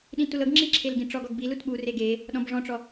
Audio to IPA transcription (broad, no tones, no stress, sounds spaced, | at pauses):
ɗ ĩ t u l ɤ ɡ ŋ͡ǁ i ǁʰ e l ɡ ĩ ʈ͡ʂ ɔ ɡ ɔ ɡ b i l u t ɓ u r e ɡ e | ɗ ɔ̃ b ʐ ɔ̃ ʈ͡ʂ ɔ